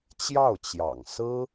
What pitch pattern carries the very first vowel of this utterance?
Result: falling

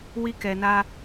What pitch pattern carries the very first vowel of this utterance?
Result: high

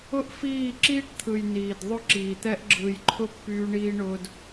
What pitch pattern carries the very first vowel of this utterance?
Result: high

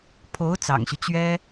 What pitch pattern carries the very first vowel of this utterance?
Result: rising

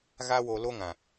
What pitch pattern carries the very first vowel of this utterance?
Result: high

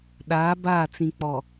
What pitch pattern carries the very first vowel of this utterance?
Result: rising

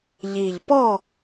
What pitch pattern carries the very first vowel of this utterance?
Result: low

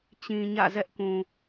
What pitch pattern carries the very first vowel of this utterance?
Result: low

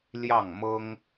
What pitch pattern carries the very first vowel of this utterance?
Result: falling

